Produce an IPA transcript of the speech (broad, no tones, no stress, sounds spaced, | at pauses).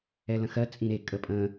ɛ l ə̃ x ɜ t͡sʼ ĩ ɾ e kʼ ə pʼ ə̃